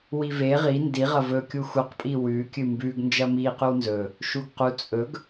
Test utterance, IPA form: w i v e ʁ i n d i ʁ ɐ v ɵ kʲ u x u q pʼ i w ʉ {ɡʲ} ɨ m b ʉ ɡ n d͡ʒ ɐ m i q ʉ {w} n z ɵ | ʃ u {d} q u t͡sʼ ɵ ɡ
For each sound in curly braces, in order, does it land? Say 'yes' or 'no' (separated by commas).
no, yes, no